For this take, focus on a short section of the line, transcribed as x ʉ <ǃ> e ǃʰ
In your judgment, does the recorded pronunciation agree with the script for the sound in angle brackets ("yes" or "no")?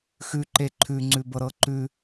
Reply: yes